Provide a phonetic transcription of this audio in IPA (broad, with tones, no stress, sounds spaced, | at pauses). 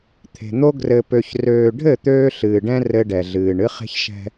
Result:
t̪ʰ e̤˨ n̪ o˦ ɡ r ɘ˨ p ø˨ ç r øː˨ ɖʱ ɘ˦˨ t̪ øː˦ ɬ ɨː˨ ɖ ɛ̃˦ r ɘ˦ ɖ ɛ˨ ɮ ɨː˨ ɳ ɨ˦ χ e̤˦ ç ʃ ɛ̤˦